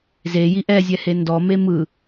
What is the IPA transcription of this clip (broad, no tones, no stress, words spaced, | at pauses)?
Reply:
zeji ʔɛzʲɛhe ndɔme mɯ